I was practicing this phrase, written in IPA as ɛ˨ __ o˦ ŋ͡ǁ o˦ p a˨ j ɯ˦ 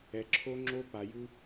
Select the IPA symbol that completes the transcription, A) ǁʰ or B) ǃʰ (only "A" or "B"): A